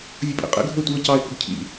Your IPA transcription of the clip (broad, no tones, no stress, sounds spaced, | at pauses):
vʲ ʊ pʼ ḭ qʼ ḭ ɡʱ ʊ ɪ̯ tʷ i ə̯ c ɑ ɪ̯ k ʊ ɡ cʰ ḭ